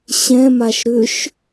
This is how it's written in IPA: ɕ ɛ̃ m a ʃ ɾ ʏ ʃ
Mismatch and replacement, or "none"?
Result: none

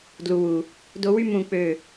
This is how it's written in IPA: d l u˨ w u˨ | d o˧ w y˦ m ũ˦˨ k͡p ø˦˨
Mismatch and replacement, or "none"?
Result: none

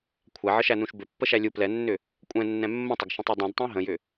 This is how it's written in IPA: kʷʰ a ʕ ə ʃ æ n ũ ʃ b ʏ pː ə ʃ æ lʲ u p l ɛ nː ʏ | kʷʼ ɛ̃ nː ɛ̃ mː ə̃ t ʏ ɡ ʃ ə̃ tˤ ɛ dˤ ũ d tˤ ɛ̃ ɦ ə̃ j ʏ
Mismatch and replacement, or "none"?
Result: t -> tˤ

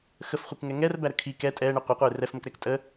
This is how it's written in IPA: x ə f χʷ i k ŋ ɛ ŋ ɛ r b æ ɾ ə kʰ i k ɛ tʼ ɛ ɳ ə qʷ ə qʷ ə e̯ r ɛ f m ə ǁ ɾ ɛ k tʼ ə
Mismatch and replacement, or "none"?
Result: ǁ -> k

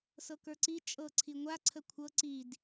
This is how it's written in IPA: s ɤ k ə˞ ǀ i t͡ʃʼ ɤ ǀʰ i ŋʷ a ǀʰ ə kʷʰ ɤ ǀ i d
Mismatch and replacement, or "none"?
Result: none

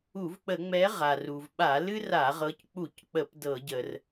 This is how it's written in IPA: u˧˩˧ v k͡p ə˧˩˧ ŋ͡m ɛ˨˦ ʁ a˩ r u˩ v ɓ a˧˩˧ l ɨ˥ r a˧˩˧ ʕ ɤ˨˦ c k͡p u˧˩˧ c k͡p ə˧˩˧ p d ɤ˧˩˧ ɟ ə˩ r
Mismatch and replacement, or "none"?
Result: ʕ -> ʁ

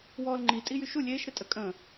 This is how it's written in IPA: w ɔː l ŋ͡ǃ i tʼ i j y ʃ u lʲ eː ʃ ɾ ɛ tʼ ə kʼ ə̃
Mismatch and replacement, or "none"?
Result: none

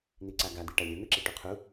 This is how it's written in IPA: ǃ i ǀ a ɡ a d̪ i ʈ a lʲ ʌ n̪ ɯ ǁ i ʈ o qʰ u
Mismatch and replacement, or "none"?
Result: ǃ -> n̪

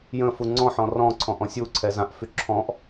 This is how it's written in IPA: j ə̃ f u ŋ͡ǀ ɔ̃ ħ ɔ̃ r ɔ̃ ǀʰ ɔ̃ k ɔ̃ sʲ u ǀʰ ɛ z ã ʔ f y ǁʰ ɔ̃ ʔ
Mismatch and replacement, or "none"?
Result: k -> ʔ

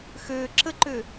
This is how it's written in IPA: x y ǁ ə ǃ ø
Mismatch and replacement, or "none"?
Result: y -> ø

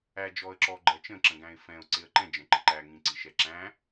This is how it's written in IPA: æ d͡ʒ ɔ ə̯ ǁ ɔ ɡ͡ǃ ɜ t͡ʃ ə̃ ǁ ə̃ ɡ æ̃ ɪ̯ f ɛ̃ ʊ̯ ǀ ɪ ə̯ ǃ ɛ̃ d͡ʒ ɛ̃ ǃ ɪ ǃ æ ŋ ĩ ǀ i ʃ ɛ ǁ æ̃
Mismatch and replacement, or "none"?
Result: none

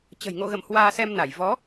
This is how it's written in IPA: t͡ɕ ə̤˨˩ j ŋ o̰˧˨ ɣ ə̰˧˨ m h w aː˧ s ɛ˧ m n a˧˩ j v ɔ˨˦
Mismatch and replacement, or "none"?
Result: none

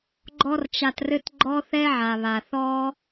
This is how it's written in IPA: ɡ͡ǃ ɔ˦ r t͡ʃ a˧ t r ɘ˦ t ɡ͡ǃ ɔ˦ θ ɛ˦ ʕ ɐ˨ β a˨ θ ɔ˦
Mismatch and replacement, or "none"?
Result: ɐ˨ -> a˨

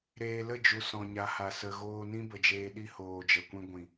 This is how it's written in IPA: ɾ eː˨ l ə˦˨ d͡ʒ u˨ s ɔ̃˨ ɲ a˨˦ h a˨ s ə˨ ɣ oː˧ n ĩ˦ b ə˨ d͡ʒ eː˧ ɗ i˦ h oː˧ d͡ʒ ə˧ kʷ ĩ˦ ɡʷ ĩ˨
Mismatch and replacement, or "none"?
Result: none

